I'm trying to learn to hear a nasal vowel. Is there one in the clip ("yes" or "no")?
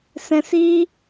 yes